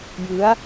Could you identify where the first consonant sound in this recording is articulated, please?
palatal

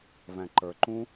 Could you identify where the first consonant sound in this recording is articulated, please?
labial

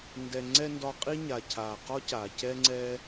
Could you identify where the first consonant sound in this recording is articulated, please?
alveolar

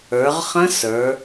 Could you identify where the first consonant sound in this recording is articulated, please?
uvular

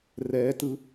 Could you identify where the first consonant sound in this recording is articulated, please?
alveolar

